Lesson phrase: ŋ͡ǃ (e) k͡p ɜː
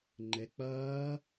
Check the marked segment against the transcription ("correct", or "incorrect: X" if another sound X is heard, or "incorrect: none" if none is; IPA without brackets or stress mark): correct